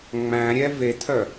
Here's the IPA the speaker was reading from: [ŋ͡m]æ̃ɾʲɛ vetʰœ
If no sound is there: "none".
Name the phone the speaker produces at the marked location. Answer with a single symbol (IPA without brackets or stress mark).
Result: ŋ͡m